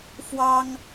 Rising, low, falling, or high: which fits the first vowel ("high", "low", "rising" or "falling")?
high